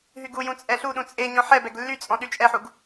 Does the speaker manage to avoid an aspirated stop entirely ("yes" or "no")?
yes